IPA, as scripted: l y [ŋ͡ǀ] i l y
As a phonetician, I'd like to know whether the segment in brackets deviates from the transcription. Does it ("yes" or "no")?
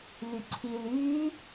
yes